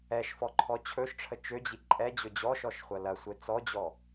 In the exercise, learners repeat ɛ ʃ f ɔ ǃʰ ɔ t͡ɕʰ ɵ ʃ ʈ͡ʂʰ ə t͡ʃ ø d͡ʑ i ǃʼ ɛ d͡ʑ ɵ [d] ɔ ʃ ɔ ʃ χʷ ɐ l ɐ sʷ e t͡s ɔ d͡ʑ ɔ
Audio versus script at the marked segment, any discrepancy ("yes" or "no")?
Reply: yes